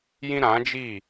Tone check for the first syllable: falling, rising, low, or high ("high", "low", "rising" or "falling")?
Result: high